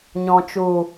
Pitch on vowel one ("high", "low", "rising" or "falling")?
low